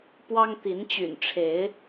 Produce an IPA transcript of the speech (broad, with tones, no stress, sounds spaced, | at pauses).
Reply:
p w ɑ˦ ŋ t̪ i˨˦ n t͡ɕ y̰˨˩ n ʈ͡ʂʰ e˨˦ ɪ̯